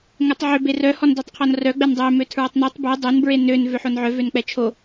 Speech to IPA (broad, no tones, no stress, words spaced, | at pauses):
ŋɛtˤʕø berœ hɔndøtˤqʰɔnrœ ɡ͡bɛndˤø møtʰɹɔtˤnetˤ bø dˤon bɹenøn vøħonʕœ vønk͡pɛt͡ʃʰo